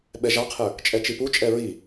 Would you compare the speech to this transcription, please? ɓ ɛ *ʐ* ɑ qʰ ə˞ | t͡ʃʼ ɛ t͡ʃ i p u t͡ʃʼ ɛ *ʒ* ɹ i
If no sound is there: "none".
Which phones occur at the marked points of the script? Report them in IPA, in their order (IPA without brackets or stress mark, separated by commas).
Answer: ʒ, none